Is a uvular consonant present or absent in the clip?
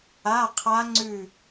present